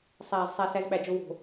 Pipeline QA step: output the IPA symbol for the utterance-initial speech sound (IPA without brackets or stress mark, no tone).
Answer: sˤ